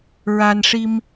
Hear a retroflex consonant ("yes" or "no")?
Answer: yes